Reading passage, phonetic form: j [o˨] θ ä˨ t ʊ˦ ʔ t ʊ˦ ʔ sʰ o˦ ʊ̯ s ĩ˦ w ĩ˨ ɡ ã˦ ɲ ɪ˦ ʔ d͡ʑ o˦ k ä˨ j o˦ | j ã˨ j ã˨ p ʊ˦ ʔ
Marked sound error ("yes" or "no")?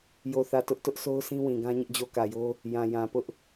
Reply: no